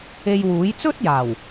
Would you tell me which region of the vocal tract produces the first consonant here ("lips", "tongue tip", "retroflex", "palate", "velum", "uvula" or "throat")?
palate